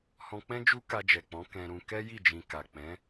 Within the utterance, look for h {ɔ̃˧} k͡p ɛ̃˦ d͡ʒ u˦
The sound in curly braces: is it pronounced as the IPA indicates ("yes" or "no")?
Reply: yes